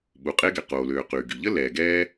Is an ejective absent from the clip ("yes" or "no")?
no